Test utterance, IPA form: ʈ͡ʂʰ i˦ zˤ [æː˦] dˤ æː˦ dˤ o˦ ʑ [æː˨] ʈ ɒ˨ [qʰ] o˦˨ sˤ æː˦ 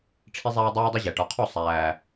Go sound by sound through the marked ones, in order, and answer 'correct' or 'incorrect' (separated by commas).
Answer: correct, incorrect, correct